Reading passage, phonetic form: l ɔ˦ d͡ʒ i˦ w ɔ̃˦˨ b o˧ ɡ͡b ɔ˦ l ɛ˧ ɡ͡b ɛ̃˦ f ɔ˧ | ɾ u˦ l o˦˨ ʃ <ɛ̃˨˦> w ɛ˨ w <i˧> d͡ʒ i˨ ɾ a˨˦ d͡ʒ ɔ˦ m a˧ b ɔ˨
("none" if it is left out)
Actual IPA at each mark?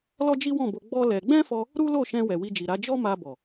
ɛ̃˧, i˧

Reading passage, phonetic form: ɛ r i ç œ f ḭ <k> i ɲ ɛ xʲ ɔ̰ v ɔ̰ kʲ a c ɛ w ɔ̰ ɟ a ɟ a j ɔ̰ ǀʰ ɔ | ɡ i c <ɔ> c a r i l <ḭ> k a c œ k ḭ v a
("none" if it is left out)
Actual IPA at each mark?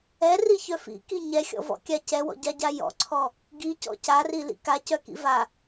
k, ɔ̰, ḭ

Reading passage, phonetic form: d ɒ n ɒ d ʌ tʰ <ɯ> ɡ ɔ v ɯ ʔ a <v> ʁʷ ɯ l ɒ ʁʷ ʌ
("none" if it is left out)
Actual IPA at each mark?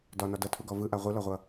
u, none

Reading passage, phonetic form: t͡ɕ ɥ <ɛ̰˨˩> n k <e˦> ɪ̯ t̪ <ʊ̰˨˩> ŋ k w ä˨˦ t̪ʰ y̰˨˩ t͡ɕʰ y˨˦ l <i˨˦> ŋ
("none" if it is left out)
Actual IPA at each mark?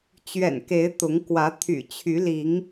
ɛ̰˨˩, e˨˦, ʊ˨˦, i˨˦

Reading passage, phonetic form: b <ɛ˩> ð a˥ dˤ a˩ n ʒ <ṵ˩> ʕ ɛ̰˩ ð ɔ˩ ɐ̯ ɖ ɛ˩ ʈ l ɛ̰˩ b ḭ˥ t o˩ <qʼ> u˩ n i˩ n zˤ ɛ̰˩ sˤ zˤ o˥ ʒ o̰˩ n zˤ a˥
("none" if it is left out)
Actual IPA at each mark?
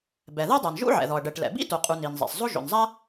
ɛ˩, ṵ˥, qʼ

